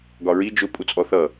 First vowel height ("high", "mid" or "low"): low